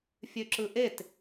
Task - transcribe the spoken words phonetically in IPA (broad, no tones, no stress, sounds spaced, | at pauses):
fʲ ø ǁ ɯ ʔ e t